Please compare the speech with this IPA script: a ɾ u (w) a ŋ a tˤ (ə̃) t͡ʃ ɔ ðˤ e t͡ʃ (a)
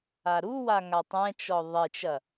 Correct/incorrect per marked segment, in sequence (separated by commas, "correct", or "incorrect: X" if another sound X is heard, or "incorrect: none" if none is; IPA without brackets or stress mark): correct, incorrect: ɛ̃, incorrect: ɐ